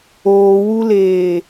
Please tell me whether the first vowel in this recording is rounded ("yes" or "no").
yes